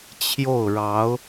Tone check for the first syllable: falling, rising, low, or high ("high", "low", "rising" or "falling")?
falling